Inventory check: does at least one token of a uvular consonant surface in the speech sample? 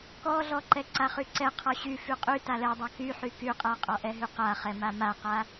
yes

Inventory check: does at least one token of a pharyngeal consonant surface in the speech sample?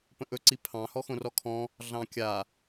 no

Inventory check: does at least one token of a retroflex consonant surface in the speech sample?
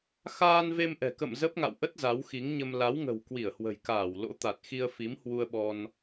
no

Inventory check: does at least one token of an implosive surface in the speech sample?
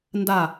no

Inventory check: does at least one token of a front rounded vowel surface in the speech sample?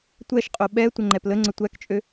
yes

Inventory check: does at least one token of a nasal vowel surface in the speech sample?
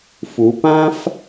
yes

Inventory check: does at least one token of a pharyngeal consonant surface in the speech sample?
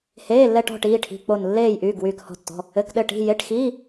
no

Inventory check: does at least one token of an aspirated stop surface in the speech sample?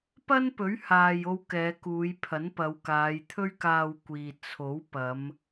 yes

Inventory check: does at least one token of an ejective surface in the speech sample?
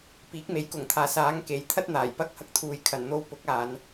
no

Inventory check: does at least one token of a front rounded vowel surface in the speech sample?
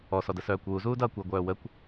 yes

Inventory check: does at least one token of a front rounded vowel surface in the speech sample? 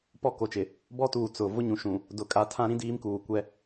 no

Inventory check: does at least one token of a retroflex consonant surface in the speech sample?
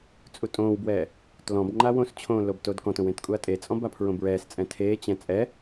no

